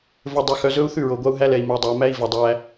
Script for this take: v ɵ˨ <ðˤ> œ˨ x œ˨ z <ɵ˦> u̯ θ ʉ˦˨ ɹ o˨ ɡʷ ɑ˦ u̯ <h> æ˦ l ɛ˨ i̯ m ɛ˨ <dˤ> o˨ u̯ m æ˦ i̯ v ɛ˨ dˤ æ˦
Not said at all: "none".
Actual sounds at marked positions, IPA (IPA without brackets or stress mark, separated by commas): dˤ, ɵ˦, ɦ, dˤ